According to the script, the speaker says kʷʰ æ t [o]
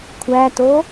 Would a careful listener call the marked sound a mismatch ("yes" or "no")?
no